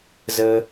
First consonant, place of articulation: alveolar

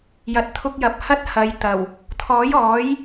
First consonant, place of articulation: palatal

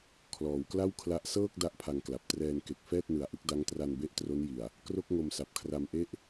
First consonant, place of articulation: velar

